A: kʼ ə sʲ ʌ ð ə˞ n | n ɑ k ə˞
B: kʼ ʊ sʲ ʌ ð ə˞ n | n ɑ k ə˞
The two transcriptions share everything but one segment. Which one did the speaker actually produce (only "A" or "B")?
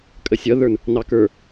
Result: A